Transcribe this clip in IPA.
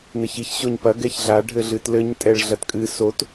n ɘ ç i ç ɕ o ɲ p ɐ ɡ ɛ ç ɮ a ɖʱ ɘ ɮ ɨ t l ɘ ɲ tʼ ɛ ɭ ɮ ɐ t kʼ ɨ s o t

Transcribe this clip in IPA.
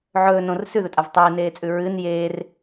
ʕ ɵː n õ r s ʉ ð ɵ tʼ a v tˤ eː n eː t͡sʼ ʉ ɹ ɨ n j e r

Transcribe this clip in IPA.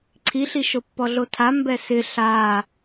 ǀʰ i ɬ i ʃ o pː ɔ ɮ o tʰ a m b ɛ s ɪ ɬ a

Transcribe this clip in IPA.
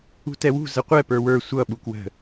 ṳ t ɛ w ṳ z ə qʷ ɛ p ə˞ w ə˞ sʷ ʌ ɓ u k w ə̤

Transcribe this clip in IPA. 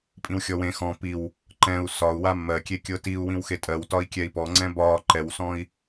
pʼ ĩ w xʲ ɔ w ẽ x ɔ̃ p i w | ǃ ɛ̃ u̯ s ɒ u̯ w a mː ɜ kʲ e kʲ ɤ t i u̯ w ĩ w x e tʼ ɜ w t ɒ i̯ kʲ ɛ i̯ p ɔ ŋ͡ǀ ɛ̃ b ɒ ǃ ɛ w s ɔ̃ i̯

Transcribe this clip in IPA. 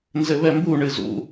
n z ɘ β ɛ m b u ɳ ɨ z ṵ

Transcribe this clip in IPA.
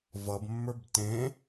v ʌ b mː ə˞ b t ẽ

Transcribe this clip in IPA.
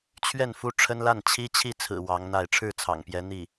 t͡ɕʰ ɥ ɛ˥˩ n f u˥ ʈ͡ʂʰ ə˥ n l a˥˩ n t͡ɕʰ i˥ t͡ɕʰ i˥˩ t͡sʰ ɹ̩˨˩ w ɑ˧˥ ŋ n̪ a˥˧ ɪ̯ ʈ͡ʂʰ ɻ̩˥˩ t͡sʰ ɑ̰˨˩ ŋ p j ɛ˧˥ n̪ i˥˩

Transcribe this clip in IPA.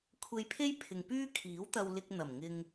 kʷʰ e˧ j pʰ e˥ j pʰ ɪ˨ ŋ p yː˥ kʰ iː˨˥ w t̪ ɐ˧ w l ɪ˧ k̚ n̪ ɐ˨˩ m ŋ ɪ˧ ŋ

